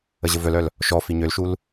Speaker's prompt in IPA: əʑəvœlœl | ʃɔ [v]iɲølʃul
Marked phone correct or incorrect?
incorrect